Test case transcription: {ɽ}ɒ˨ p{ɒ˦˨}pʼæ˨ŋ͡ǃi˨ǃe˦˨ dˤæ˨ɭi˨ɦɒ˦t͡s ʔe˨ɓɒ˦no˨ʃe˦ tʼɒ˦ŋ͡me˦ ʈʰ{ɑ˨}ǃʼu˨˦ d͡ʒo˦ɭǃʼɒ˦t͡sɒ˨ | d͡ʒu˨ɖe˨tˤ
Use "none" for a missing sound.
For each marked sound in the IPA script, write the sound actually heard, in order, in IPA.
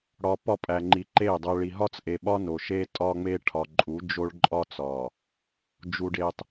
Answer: ɽ, ɒ˦˨, ɒ˨

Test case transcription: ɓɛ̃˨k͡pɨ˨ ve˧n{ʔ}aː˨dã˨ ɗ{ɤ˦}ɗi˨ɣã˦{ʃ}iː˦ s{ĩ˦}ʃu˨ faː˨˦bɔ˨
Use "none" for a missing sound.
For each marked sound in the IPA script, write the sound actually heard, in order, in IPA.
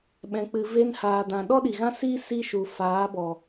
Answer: h, ɔ˦, s, i˦

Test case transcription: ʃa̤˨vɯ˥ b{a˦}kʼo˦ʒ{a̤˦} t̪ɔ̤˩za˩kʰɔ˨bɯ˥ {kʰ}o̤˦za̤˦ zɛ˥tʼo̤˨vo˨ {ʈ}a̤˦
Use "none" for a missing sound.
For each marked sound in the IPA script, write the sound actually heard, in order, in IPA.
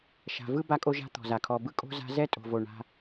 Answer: a˦, a̤˦, kʼ, ɳ

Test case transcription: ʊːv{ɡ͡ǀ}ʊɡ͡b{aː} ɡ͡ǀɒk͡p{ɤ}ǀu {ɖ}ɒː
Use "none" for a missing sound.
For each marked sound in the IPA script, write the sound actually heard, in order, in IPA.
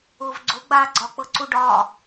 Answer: ɡ͡ǀ, aː, ɤ, ɖ

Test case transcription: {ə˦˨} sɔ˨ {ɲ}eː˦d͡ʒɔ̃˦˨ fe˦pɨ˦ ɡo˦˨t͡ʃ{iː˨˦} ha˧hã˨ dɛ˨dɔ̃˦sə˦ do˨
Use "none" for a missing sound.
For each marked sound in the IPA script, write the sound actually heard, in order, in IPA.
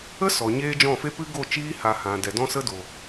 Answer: ə˦, ɲ, iː˦

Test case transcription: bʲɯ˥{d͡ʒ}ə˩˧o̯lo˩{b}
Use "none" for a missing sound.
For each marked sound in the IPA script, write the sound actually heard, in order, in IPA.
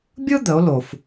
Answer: d̪, f

